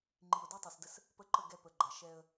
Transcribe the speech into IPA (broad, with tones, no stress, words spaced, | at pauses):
ŋ͡ǃi˨ʊ̯di˦tˤɐ˨sdə˦s | pə˦˨ǃə˦˨ ɡɛ˦pə˨ɡ͡ǃɐ˨ ʃɛ˦ə̯